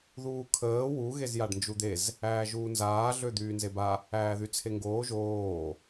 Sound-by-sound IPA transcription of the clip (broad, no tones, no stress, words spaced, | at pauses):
ðuːkʰəː wu ɣezjaɖnd͡ʒud̪ez | æːʒuːnzaː ɮød̪yːnzeba | æːðyt͡sʰeŋɡoː ʒoː